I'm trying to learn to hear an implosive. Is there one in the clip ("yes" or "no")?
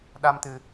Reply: yes